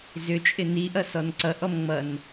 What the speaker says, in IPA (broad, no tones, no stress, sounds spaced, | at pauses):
z ʏ t͡ʃʼ ɪ n i ʔ ʌ s ɔ n ǀ ʌ ʔ ɔ m ŋ͡m ʌ n